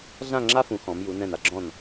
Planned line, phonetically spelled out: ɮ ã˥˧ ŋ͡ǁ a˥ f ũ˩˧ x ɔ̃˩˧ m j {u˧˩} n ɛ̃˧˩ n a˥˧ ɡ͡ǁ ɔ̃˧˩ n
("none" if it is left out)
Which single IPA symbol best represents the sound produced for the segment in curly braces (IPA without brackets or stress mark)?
u˩˧